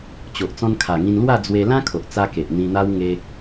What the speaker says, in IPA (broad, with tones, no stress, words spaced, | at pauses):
t͡ɕo˨ʔ t͡sɔ̃˧nkʰa˨˩ŋĩ˧nlwa˥˧ d͡zwe˧ lã˦kʰo˨ʔt͡sa˧ ke˨ʔn̪ĩ˧n̪a˦w ŋe˧